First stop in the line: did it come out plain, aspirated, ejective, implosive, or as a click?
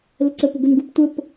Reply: click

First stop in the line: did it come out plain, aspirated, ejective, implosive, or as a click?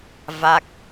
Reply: plain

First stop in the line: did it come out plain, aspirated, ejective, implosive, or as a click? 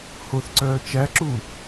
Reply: click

